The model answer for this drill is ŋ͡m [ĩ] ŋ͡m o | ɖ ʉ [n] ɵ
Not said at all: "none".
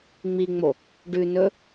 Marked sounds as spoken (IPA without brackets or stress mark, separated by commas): i, n